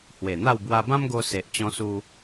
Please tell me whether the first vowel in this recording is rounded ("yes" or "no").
no